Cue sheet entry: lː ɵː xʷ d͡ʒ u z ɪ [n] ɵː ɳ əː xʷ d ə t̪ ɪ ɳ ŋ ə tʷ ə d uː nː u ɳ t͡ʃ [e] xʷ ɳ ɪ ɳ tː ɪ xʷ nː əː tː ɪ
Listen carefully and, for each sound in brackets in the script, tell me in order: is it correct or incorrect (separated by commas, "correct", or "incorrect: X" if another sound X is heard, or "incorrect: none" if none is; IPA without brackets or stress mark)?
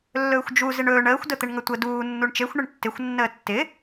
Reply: incorrect: ɳ, correct